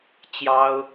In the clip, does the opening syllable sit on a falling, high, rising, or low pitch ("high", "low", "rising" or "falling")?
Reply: high